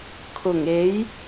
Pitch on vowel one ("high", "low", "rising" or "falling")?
low